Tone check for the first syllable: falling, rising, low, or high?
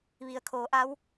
low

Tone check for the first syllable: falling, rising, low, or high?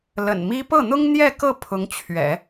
low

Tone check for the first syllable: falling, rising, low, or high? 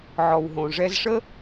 low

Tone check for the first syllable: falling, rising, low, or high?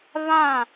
falling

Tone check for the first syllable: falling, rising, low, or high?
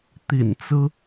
low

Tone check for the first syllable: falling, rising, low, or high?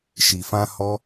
low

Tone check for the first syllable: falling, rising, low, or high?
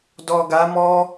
low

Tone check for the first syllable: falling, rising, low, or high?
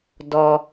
low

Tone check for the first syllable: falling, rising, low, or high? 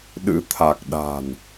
rising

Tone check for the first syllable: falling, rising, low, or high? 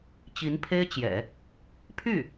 rising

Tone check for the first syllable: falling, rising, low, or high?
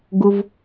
low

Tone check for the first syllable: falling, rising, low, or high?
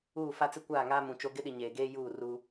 falling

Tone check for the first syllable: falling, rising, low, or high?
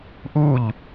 falling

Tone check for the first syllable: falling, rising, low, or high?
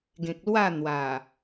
low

